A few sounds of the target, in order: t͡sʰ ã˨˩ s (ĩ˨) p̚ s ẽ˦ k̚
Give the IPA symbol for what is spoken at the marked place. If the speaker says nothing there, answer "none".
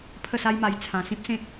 ĩ˦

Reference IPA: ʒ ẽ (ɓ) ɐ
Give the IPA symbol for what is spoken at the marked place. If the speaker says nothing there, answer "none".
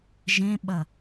ɓ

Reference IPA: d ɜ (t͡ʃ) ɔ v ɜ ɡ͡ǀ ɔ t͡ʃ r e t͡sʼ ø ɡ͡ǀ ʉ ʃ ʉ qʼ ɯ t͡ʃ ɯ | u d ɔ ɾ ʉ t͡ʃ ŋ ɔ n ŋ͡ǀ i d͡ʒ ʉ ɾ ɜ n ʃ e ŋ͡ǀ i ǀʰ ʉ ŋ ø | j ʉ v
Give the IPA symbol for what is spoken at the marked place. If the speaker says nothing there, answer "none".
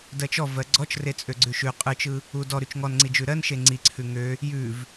t͡ʃ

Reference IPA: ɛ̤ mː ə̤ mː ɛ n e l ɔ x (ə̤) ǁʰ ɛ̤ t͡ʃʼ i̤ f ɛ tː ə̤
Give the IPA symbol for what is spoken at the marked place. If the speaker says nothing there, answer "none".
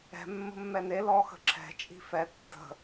ə̤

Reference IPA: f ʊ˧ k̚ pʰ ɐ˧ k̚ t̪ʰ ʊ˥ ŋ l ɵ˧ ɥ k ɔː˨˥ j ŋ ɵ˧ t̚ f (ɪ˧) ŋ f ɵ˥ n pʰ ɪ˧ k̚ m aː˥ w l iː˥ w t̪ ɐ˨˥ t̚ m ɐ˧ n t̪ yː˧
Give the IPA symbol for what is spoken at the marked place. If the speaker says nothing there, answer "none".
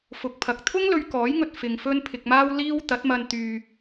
ɪ˧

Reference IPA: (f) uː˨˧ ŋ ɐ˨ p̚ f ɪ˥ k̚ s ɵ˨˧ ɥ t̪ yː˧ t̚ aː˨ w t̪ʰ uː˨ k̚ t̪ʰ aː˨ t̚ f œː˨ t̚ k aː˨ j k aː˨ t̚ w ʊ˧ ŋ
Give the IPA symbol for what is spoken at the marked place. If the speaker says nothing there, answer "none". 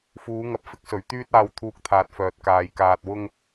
f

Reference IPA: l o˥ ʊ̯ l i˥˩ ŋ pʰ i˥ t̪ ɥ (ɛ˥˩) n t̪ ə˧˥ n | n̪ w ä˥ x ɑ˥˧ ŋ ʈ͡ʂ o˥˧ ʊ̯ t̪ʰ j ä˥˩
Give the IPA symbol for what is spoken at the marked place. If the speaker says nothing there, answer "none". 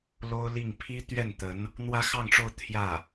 ɛ˥˩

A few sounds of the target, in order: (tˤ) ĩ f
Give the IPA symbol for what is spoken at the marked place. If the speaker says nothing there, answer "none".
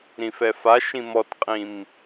ɾ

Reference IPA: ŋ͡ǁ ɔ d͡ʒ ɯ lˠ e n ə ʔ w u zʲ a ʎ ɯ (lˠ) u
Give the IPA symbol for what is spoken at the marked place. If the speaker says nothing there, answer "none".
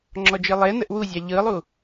lˠ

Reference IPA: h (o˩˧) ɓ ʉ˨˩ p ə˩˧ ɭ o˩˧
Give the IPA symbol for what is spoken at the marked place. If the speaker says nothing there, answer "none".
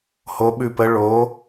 o˩˧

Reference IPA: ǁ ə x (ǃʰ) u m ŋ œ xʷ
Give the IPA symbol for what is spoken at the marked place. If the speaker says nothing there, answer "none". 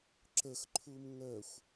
ǃʰ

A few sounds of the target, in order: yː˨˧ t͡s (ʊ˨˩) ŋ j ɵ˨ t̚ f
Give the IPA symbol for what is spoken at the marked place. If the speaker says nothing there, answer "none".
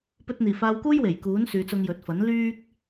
ʊ˧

